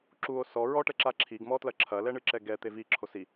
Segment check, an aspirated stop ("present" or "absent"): present